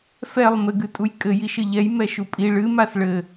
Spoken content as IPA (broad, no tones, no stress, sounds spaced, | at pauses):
f ɛ lˠ m ɘ ɡ ɨ tʼ u j kʼ ɘ j i ʃ ɘ ʎ ɛ j m ɛ ʃ u pʼ i ɭ ɨ m a s ɭ ɘ